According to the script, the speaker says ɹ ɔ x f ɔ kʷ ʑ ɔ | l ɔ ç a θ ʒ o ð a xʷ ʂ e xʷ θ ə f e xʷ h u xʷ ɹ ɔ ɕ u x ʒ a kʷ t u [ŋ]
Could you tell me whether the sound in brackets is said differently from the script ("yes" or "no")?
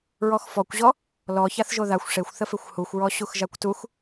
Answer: yes